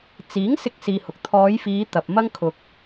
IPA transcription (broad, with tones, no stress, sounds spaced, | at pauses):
t͡s iː˨˥ ŋ s ɪ˧ k̚ s iː˧ h ʊ˨ k̚ t̪ʰ ɔː˨˧ j f iː˨˧ t̪ ɐ˨ p̚ m ɐ˥ ŋ kʰ ʊ˨ k̚